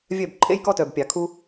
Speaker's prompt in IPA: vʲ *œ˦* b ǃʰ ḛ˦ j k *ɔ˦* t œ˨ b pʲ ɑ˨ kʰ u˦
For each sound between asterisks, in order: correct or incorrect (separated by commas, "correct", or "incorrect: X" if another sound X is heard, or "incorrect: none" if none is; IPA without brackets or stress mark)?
incorrect: œ˦˨, correct